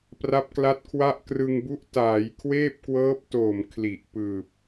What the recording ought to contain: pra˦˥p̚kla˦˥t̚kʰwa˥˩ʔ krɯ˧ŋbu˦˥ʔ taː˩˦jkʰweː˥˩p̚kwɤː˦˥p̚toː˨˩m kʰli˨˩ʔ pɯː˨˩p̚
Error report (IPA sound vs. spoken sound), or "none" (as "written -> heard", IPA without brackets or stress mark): none